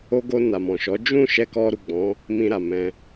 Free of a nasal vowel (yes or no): no